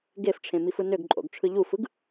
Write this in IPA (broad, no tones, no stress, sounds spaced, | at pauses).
ɡ e f ʈ͡ʂʰ ẽ m i f ɯ n ø ɡ ǃʼ o̰ ɡ ʈ͡ʂʰ ɯ ʎ u f ɯ ɡ